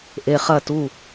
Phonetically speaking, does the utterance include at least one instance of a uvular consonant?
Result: yes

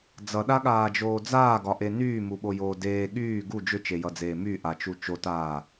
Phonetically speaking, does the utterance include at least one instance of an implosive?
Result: yes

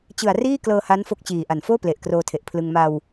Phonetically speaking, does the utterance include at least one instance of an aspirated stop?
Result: yes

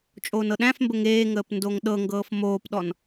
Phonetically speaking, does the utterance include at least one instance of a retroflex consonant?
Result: no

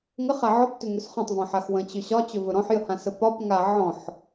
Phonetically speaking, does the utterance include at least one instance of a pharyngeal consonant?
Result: yes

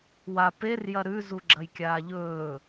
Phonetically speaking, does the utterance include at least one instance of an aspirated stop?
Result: no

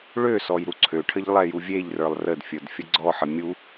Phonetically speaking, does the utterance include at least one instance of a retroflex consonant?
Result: yes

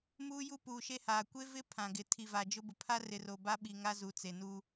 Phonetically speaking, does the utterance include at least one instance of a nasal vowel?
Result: yes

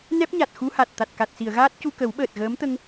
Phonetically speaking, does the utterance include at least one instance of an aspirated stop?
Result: no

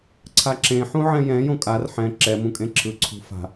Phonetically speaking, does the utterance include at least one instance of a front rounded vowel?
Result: no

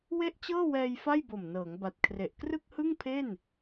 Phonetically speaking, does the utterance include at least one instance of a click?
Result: no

